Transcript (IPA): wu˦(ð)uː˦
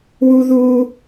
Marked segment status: correct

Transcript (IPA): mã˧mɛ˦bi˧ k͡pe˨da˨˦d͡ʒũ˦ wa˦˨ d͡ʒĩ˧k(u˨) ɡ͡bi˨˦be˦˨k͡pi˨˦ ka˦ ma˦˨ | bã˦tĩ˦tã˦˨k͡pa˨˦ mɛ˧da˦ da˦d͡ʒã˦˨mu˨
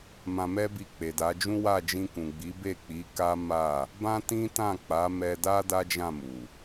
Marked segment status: incorrect: ũ˨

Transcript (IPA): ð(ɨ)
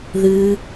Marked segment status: correct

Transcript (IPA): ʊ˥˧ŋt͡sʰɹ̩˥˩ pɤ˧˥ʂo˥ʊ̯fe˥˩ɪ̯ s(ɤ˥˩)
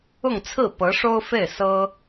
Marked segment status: incorrect: ɤ˥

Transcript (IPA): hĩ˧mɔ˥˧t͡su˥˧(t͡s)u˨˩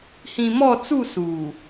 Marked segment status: incorrect: s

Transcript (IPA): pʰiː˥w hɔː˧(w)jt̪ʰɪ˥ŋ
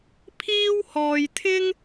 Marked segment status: incorrect: none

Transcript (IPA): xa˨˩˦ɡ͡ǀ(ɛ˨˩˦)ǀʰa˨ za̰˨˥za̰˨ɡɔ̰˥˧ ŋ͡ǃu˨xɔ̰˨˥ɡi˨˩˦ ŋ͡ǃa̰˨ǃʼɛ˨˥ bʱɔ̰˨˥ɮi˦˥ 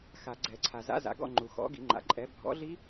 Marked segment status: correct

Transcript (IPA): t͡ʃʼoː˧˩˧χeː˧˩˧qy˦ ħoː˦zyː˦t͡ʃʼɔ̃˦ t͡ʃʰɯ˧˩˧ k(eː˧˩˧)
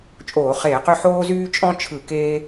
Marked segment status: incorrect: eː˦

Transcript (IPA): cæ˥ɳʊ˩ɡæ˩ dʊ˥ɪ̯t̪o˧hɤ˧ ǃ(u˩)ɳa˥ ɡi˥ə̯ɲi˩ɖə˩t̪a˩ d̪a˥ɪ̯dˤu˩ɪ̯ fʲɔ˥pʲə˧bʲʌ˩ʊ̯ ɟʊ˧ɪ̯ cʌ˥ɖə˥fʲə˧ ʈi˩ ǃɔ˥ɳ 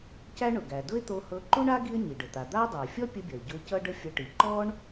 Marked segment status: incorrect: u˥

